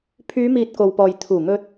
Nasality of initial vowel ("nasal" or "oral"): oral